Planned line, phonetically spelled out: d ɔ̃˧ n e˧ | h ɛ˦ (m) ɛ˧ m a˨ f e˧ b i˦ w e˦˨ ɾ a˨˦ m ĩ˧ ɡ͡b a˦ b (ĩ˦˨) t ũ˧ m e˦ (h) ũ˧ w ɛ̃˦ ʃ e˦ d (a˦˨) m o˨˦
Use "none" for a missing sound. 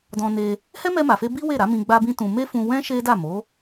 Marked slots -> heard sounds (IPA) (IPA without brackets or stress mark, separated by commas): m, ĩ˦, f, a˦˨